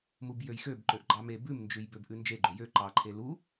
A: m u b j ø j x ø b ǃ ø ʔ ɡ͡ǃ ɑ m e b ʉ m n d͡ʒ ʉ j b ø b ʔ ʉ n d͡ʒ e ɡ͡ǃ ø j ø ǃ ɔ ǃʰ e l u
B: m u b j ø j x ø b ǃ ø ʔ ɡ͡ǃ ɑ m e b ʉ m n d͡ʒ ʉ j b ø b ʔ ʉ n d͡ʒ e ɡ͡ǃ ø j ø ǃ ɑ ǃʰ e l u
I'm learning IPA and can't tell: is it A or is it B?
B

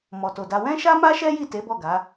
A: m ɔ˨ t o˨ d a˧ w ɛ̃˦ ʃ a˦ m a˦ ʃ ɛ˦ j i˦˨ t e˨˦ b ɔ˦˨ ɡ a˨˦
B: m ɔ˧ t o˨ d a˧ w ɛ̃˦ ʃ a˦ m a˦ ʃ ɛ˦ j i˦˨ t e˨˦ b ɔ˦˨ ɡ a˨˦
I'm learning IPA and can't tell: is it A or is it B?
A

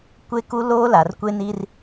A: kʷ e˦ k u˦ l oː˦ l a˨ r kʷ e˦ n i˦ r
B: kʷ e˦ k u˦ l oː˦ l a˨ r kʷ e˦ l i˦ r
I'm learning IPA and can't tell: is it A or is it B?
A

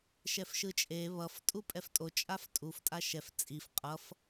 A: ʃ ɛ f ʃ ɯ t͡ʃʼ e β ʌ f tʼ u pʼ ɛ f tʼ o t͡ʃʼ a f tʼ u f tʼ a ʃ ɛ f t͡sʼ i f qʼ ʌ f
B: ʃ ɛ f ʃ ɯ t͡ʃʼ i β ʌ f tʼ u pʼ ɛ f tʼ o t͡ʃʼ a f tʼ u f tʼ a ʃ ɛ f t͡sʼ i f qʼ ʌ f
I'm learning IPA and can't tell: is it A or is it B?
A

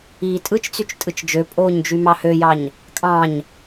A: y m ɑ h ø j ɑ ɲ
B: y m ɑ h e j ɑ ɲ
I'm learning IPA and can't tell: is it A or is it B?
A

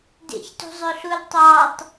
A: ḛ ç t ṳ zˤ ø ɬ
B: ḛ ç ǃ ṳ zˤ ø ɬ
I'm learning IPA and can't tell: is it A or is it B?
A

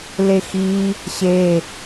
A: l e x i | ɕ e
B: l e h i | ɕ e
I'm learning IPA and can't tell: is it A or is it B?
A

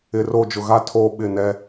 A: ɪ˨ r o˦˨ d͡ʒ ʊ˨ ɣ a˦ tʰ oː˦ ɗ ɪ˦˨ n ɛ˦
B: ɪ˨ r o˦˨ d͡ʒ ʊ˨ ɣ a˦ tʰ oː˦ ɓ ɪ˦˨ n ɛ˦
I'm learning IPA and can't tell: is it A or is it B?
B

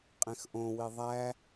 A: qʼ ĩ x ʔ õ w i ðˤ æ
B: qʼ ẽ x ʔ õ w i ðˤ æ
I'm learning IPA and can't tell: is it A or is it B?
B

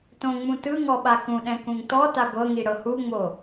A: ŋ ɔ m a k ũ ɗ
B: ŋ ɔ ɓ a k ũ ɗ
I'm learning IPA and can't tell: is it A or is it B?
B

